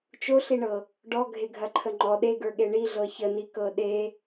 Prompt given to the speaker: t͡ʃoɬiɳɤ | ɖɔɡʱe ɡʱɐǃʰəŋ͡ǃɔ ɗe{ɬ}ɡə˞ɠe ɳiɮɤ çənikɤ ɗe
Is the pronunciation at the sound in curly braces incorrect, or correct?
incorrect